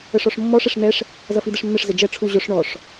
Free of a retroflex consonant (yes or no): no